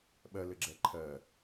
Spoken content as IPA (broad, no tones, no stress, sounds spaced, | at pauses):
ɓ ɜ l ɘ ɡ͡ǁ ɛ ǃʰ ɜ